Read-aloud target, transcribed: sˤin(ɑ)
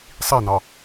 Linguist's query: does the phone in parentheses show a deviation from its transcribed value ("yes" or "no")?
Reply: no